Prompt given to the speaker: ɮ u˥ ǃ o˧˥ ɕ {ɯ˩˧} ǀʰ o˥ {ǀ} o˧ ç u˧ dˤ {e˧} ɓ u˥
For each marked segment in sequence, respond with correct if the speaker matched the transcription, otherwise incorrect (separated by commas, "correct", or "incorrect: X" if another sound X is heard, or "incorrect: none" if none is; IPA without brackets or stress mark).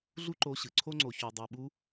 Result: correct, incorrect: ŋ͡ǀ, correct